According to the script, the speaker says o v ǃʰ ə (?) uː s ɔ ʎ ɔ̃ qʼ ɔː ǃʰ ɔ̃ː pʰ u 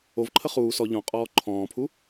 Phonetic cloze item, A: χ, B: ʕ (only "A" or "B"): A